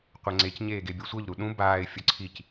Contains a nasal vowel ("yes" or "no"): yes